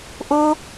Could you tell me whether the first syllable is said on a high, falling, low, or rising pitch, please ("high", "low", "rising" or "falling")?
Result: high